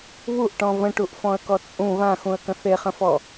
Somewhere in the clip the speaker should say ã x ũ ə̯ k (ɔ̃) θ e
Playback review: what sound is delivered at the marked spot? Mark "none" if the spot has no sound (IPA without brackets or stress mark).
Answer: ə̃